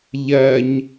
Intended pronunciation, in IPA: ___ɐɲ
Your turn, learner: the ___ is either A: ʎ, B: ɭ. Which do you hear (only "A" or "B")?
A